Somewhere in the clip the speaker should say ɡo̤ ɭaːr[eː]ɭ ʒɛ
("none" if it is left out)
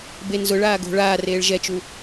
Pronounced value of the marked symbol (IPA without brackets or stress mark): eː